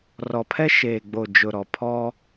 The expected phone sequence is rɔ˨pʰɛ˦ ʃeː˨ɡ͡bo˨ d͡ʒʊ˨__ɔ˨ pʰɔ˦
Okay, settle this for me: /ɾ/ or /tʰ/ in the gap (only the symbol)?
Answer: ɾ